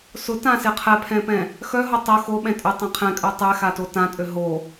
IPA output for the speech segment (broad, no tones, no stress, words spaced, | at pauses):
sʊ tãsɪ qʰɛpʰɛ̃pɛ̃ | xœɦo tˤʊ xoɓɛ̃ tʼʏtˤɛ̃ qʰɛ̃kʼœ tˤɛxato tãtʼø ɦo